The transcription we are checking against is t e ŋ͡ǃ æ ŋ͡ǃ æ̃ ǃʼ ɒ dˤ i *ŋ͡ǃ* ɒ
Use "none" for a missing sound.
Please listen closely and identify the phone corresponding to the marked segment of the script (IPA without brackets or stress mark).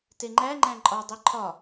ǃʰ